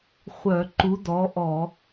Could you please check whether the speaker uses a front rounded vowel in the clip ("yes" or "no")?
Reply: yes